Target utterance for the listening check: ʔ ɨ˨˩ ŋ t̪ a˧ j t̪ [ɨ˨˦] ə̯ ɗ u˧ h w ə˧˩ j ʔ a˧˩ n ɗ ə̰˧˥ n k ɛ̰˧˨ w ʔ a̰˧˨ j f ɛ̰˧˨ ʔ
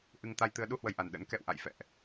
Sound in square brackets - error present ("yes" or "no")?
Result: no